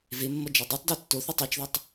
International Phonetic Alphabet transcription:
vemːʌ d͡ʒɛdˤutˤde tːoθatˤ at͡ʃðʌtˤ

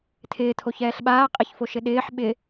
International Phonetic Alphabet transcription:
tʰɪːtʰoçɛːɬ ɓaː qʼɪçfoʃɪ ɗɪːħ ɓɪ

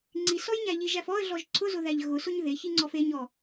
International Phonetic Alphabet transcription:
ŋ͡ǀisɔjɲæ ʎiʒæf ɔə̯ɮɔʒ ǀʰʊzʊðæʎ ɣʊsʊɲ ðeçiŋ͡ǀɔf eɲɔ

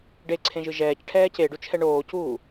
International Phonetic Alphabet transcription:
ɖeǀʰẽʒɯ ʒɛːcʈʰɛː ceɖut͡ʃʰɛ ɳoːcuː

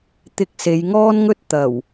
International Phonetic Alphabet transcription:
t̪ɪ˧k̚ se˨˧jŋɔː˥nŋɵ˥t̚ t̪ɐ˨˩w

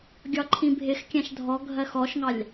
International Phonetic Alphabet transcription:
ɡʲɒǃʰĩbʱɪxkʲæ̃ʃ dʱɔɡʱɜx ɔʃŋɑlʲ

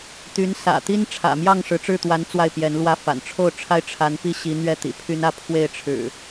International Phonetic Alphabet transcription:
t̪y˨˦nsä̰˨˩ t̪i˦nʈ͡ʂʰä̰˨˩mjɑ˥˨ŋ ʂɻ̩˨˦ʈ͡ʂɻ̩˥˨t̪wa˨˦n t͡swa˥˨ɪ̯pjɛ˨˦nlwä˦fa̰˨˩n ʈ͡ʂʰo˥˨ʊ̯ʈ͡ʂʰa˦ɪ̯ ʈ͡ʂʰa˨˦npi˥˨ ɕi˨˦n̪ɥɛ˥˨ t̪ḭ˨˩pʰy˦nä˦ pʰwe˥˨ɪ̯ʈ͡ʂʰɻ̩˨˩

